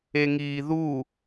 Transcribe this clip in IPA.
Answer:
eŋiːðu

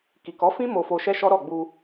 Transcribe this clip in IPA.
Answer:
ki˨kɔ˨˦fĩ˦ mo˧fo˧ʃɛ˦ ʃɔ˦ɾɔ˦˨ɡ͡bu˧

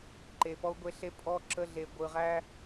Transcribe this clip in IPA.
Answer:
ǃe˨pɔ˦u̯ɡʷe˦ɬe˦ pʼɔ˦ǁə˦ɮe˨ ɡʷɯ˨ʁæ˦

